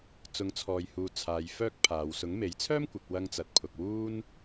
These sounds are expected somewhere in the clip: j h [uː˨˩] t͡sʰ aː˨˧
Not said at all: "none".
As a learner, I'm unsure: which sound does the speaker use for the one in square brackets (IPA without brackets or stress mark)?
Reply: uː˨